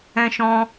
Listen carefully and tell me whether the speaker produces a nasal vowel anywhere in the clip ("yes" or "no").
yes